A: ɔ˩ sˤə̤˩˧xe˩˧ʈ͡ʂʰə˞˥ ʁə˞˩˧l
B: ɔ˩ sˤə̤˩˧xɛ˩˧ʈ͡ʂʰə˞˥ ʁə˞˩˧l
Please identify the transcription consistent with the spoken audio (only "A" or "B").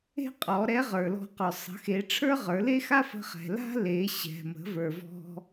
A